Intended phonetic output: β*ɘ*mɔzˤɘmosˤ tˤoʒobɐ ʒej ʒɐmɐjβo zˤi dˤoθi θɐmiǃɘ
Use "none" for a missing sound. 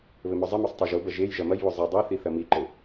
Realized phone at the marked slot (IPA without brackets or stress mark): ɘ